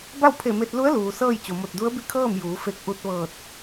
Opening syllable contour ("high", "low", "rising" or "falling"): falling